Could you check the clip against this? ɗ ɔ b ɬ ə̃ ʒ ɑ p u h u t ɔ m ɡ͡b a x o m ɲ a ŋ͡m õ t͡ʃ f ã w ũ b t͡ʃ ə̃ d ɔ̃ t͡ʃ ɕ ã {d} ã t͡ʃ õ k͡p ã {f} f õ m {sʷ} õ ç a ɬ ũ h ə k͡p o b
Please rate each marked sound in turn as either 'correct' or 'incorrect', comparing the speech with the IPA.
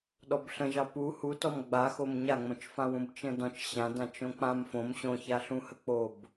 correct, incorrect: m, incorrect: ɕ

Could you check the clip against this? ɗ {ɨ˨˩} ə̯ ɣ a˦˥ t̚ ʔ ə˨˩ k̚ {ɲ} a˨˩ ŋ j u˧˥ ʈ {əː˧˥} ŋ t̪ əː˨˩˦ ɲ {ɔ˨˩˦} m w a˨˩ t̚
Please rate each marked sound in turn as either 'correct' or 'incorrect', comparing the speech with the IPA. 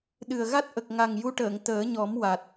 correct, incorrect: ŋ, incorrect: əː˨˩˨, correct

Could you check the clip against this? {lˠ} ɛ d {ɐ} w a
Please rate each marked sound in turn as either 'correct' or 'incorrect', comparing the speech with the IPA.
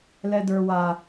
incorrect: l, incorrect: ə˞

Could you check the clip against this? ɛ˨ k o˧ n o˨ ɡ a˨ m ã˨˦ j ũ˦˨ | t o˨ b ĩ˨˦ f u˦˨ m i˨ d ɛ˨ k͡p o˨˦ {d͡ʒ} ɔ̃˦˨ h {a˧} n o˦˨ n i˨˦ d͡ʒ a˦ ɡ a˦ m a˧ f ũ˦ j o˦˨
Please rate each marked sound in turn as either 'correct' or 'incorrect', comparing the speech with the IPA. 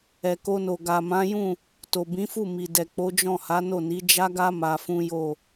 correct, incorrect: a˨˦

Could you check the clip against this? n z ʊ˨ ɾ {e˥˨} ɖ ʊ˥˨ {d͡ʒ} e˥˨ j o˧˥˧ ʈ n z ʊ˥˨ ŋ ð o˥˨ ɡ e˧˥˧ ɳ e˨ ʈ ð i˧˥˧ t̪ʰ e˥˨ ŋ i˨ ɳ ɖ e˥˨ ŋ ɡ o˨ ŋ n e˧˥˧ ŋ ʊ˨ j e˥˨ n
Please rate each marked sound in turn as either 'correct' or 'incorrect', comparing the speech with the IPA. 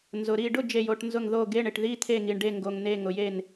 incorrect: i˥˨, correct

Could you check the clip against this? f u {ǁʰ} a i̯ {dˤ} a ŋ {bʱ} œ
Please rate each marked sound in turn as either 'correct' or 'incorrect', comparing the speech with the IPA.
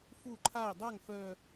incorrect: ǃʰ, correct, incorrect: f

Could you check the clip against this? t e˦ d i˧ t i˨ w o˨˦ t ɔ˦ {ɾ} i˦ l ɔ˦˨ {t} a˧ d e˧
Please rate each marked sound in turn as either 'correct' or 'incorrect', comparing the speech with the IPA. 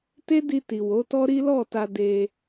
correct, correct

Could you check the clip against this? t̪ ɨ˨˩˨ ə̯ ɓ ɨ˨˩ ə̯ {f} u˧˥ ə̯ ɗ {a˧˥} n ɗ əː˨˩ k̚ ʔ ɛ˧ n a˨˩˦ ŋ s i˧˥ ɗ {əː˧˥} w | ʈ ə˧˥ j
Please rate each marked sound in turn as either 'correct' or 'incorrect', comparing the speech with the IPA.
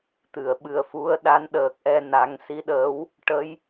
correct, correct, correct

